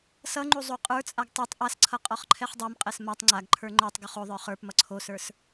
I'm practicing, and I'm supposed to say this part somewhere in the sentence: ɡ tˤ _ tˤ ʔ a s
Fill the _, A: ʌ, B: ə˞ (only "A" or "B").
B